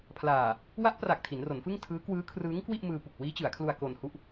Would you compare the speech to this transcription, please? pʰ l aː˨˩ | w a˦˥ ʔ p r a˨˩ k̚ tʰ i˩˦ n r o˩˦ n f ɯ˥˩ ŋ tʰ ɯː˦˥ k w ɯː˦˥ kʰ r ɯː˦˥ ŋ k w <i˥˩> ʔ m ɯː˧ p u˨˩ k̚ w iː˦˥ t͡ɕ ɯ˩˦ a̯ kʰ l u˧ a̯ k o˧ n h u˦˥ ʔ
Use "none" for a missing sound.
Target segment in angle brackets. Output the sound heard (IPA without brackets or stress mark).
i˥˩